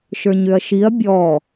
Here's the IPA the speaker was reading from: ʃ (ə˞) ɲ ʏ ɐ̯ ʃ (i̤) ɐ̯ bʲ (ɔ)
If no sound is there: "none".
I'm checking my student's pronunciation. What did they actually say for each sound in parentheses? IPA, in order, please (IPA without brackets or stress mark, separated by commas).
ə˞, i, ɔ